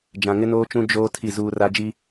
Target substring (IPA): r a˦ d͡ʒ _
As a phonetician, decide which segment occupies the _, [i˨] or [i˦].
i˦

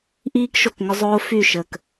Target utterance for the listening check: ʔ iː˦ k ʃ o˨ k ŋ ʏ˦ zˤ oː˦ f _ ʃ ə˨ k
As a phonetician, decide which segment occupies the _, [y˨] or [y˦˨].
y˦˨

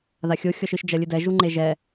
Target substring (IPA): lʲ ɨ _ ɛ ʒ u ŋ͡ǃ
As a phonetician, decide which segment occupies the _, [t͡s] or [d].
d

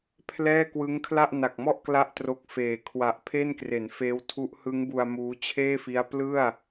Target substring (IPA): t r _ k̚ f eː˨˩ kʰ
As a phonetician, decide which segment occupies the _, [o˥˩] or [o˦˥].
o˦˥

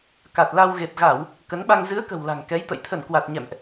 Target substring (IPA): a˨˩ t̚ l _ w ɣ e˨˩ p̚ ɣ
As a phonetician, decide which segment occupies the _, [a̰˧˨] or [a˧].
a˧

